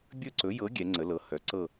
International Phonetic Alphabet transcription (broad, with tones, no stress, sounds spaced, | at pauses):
bʲ ɵ˥˧ ǀ ɵ˨˥ j ɤ˨˥ ɡʲ ɛ˨˥ ŋ͡ǀ ə˨˥ l ɤ˨˥ h œ˨˥ ǀ ɤ˥˧